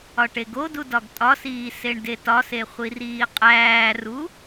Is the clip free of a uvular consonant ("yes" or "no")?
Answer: no